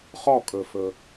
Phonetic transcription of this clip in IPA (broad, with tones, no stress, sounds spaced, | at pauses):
χ ɔ˥˩ kʼ ɵ˩ f ɵ˩